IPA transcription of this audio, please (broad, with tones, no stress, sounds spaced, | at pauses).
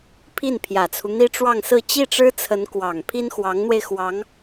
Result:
pʰ i˥˩ n pʰ j ä˨˩ t͡sʰ u˦ n̪ i˥ ʈ͡ʂ w ɑ˥˧ ŋ s ɹ̩˥˧ t͡ɕ i˥˩ ʈ͡ʂ ɻ̩˥ t͡sʰ ə˧˥ n k w ɑ˨˩ ŋ pʰ i˥ n x w ɑ˧˥ ŋ n̪ w e˧ ɪ̯ x w ɑ˧˥ ŋ